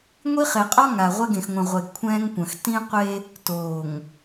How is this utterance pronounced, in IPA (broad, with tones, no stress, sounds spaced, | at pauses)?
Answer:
ŋʷ i˦ χ e˨ qʼ ɔ˦ ŋ a˨ ʁʷ e˦ ɡ ẽ˨ x ŋʷ ɛ̃˨ ʁʷ e˨ ɡ kʷʰ ɛ̃ː˦ ŋ kʷ ɐ̃˨ x t ĩ˦ qʷ e˦ | t oː˨ ŋ